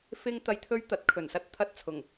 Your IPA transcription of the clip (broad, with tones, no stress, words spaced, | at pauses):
fɪ˧ŋt̪ɐ˨˧jt̪ʰɵ˧ɥ t̪ɐ˨˥t̚ kʰɵ˨˩nsɐ˧t̚ t̪ʰɐ˧t̚t͡sʰʊ˨˩ŋ